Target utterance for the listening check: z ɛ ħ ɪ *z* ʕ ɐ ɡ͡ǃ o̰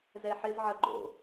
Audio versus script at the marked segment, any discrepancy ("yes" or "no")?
no